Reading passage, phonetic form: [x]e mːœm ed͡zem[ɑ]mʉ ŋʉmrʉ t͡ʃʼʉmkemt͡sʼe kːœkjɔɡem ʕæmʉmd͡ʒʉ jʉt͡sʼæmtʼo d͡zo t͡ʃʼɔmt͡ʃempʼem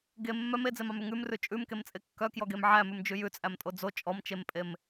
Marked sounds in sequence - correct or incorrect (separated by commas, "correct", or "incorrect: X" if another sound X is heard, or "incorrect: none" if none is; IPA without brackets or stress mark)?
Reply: incorrect: ɡ, correct